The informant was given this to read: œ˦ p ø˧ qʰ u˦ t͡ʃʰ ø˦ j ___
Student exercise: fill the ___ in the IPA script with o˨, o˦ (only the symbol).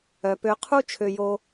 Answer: o˦